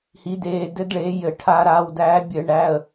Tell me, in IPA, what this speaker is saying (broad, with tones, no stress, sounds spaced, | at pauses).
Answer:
h i˨˦ d eː˩˧˩ d ɘ˦˥ d ɭ eː˨˦ j ɘ˧˩˧ ʈʰ a˧˩˧ ɾ aː˩˧˩ w d æː˨˦ bʲ ɘ˧˩˧ ɳ æː˩˧˩ ə̯